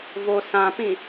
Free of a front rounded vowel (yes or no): yes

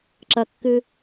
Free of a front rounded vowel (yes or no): yes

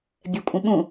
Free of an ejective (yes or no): no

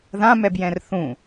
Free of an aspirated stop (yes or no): yes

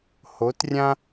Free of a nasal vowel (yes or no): no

